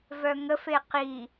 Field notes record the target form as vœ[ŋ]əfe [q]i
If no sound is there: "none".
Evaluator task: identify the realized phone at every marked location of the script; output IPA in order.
ŋ, q

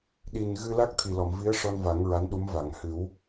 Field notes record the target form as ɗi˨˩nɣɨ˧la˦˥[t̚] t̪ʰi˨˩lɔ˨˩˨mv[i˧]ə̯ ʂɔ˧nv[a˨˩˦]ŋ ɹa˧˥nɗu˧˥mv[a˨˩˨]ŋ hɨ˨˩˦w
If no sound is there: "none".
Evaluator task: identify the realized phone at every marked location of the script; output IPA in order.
k̚, i˧˥, a˨˩˦, a˨˩˨

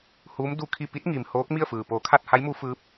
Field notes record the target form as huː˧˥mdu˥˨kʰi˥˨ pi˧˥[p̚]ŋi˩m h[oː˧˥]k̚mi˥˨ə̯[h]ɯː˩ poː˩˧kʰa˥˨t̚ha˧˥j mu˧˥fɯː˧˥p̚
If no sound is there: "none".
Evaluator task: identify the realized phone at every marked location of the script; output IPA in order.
t̚, oː˧˥, f

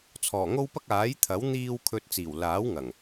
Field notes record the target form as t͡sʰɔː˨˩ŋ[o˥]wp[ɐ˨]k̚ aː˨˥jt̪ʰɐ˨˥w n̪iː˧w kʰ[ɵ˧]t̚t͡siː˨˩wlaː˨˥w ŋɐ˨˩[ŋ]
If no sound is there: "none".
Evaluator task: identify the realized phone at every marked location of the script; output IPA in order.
o˥, ɐ˥, ɵ˧, ŋ

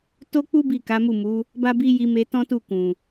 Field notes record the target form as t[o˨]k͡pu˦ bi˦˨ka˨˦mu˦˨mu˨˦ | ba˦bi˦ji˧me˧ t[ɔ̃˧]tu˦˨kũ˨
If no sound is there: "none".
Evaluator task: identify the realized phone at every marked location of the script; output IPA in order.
o˦, ɔ̃˦

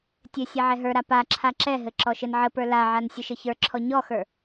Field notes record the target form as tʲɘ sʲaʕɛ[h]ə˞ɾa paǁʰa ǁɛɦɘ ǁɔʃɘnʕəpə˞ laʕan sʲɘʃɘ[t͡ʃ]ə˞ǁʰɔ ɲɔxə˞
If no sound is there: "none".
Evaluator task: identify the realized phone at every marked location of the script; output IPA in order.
ɦ, ç

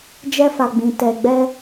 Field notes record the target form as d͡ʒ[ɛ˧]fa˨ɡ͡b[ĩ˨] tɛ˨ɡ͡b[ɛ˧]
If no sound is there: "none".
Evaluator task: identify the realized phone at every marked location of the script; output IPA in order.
ɛ˧, ĩ˨, ɛ˧

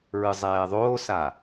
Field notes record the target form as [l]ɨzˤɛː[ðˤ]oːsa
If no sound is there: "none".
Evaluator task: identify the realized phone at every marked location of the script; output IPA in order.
ɹ, ðˤ

